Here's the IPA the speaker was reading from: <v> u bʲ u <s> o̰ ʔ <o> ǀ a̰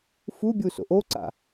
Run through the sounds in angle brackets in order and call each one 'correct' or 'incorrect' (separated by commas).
incorrect, correct, correct